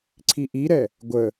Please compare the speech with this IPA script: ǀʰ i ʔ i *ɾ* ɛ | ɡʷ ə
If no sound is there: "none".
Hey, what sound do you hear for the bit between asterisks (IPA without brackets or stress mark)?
ɾ